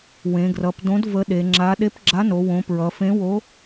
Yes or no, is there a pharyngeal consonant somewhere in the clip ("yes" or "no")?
no